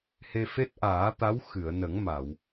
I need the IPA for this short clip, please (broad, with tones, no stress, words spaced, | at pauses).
he˧fe˦˥t̚ʔaː˨˩˦t̪a˧˥w xɨ˨˩˨ə̯nə˨˩˦ŋma˨˩˨w